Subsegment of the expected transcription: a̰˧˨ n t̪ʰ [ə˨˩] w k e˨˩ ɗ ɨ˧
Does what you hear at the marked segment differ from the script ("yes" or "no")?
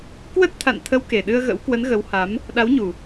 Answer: yes